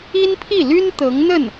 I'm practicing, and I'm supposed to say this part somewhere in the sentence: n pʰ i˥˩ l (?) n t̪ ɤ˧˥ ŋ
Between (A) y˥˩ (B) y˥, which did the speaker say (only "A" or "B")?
B